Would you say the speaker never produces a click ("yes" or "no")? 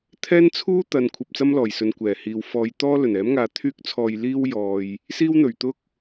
yes